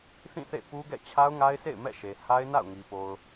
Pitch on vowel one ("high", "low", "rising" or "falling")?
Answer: falling